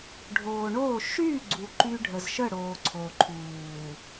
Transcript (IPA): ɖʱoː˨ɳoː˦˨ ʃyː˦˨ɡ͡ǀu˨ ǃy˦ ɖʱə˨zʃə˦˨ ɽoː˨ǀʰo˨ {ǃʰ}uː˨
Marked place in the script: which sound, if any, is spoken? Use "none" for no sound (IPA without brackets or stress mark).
ǃʰ